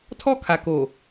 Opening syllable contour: high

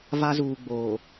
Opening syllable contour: high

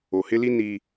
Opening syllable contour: low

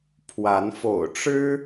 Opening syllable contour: rising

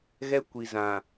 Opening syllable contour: high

